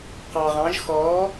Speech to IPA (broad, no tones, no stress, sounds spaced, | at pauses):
q ɑ ʁ ɑ̃ ʒ x ɔː